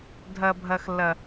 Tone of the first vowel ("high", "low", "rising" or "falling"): high